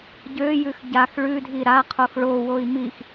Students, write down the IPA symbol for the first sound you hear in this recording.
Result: ɟ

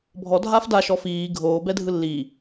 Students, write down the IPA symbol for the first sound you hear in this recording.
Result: bʱ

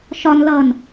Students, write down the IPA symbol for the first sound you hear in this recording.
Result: ʃ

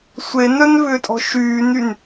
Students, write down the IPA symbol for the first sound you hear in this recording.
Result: sʷ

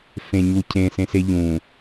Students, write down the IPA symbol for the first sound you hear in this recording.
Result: f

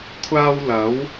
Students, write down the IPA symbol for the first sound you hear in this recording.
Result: kʷʰ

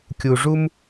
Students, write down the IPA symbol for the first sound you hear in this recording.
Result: kʲ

